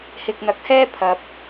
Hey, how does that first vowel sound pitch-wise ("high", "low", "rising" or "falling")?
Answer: low